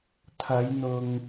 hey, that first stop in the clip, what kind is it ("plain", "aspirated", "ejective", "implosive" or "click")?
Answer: aspirated